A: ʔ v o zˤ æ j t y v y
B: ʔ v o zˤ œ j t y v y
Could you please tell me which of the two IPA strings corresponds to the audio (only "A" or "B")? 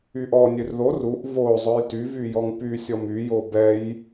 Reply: B